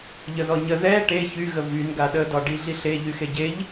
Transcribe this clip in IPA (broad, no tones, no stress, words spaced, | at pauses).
ʎəðɔɲə ðɛ ʈe çyɣə vyn ɡaɗədɒ ɖiɮiɬe ʎyxeɟeʎ